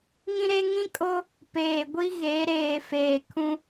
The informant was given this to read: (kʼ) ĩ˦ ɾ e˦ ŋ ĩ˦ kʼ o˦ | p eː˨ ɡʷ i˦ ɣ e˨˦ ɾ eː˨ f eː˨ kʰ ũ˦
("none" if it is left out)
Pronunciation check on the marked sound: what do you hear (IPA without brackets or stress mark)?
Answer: ŋ